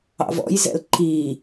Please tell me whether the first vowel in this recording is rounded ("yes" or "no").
no